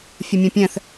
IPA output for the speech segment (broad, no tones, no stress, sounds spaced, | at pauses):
fʲ ə mʲ ɛ̃ pʲ ɛ̃ θ